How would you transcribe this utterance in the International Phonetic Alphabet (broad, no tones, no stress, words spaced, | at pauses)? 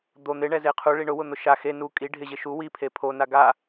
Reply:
d̪o n̪ɪɳɛze qʰuɭi ɳʊwʊn̪ʊ ʃa xe nu kʼi ɖʱɪʑɪ ʃu wipʰe pʰona ɡa